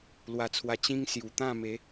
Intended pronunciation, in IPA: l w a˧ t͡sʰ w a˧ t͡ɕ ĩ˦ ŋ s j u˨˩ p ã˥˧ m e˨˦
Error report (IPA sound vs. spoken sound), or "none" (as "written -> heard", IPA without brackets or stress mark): p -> t̪